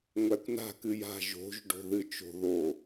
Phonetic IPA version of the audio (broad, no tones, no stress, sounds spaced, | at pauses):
ŋʷ æ kʷ n a̤ k ɨ j a̤ ʒ o̤ ʒ ɖ o̤ ð ɨ t͡ʃ o̤ ð o